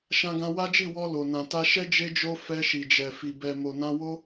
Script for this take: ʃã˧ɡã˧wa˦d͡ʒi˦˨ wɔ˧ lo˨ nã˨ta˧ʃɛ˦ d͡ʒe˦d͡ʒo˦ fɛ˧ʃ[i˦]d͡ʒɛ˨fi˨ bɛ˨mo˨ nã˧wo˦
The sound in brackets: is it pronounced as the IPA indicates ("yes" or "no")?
no